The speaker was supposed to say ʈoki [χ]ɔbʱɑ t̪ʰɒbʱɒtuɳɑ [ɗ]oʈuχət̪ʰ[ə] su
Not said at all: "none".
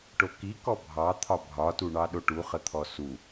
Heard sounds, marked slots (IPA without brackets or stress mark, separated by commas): k, ɗ, ɔ